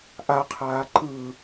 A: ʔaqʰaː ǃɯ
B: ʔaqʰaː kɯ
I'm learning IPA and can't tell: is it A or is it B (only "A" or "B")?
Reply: A